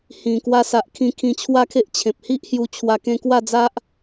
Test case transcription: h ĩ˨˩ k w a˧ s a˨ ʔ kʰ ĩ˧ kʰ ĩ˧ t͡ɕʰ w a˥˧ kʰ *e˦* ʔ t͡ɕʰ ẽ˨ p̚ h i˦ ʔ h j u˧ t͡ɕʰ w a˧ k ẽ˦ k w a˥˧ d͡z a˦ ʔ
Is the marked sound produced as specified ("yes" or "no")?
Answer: yes